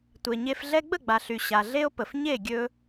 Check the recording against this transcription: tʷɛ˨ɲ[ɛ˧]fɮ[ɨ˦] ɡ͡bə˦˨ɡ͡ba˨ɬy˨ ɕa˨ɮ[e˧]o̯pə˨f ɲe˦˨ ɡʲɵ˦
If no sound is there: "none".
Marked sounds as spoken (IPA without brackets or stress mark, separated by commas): e˧, ɛ˦, e˦